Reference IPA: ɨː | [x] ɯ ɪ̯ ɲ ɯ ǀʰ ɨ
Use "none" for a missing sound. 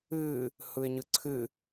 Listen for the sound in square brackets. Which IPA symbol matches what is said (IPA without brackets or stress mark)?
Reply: h